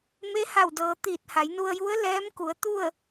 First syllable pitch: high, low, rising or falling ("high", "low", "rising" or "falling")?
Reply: rising